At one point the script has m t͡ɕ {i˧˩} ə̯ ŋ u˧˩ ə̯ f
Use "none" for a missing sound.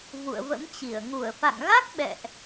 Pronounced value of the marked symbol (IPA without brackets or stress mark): i˧˩